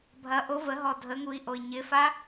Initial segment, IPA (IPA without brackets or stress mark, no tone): bʱ